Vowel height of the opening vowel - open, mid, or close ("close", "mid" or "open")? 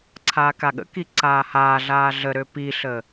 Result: open